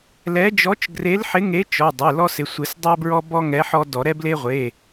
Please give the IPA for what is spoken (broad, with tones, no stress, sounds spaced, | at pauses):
l ɛ˨˥ d͡ʒ ɔ˨˥ t͡ʃ ɡ r e˨˥ l ħ ɪ˨˥ ŋ e˨˥ t͡ʃ ɔ˩˧˩ dˤ e˩˧˩ l ɔ˦ s ɪ˩˧˩ sʷ ɪ˨˩˦ s dˤ ɛ˦ b ɹ ɔ˦ b ɔ˦ ŋ ɛ˨˥ ħ ɔ˦ d ɔ˨˩˦ ɾ ɛ˦ b l e˦ ʁʷ e˩˧˩